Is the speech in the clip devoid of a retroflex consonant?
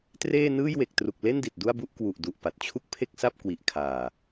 yes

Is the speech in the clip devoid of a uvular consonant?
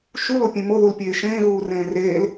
yes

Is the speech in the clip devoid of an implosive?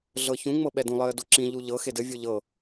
no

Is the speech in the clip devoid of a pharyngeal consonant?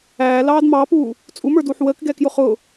no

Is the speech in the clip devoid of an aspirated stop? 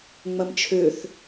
no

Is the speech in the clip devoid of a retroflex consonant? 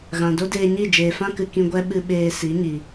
yes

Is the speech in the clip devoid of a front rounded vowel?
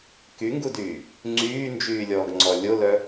no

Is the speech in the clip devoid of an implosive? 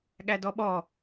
no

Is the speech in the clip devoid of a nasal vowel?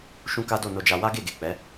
no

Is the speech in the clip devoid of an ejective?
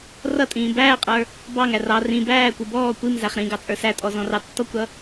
no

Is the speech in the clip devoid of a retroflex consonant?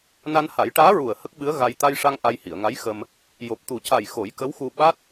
no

